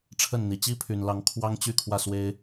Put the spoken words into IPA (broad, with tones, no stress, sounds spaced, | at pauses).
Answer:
ʈ͡ʂʰ ə˥˩ n n̪ i˨˩ t͡ɕ i˥ pʰ y˨˩ n l ɑ˧˥ ŋ kʰ w ɑ˥ ŋ t͡ɕ y˥˧ kʰ w ä˥˩ s w e˥ ɪ̯